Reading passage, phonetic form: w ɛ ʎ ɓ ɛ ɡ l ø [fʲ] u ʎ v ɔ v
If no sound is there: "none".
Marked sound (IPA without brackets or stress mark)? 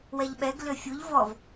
fʲ